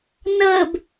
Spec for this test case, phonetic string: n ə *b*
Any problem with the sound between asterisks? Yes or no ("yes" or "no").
no